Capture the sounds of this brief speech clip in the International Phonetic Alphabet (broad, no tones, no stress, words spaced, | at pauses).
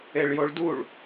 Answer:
eɭjoɭduɭ